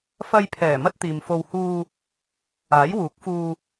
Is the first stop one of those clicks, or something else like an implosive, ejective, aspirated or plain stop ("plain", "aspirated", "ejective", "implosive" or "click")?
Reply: aspirated